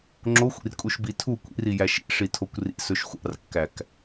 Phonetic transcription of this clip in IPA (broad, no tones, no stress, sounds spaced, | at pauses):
ŋ͡ǁ o xʷ ḭ r kʼ u ʃ b i tʰ u kʷ ḭ r i j æ ʃ ḭ ʂ i tʰ o kʷ r ḭ s ɵ ʃ xʷ ɑ̰ r kː æ k